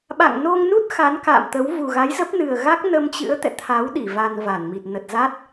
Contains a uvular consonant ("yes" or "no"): no